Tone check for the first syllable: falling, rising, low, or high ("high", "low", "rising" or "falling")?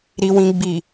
low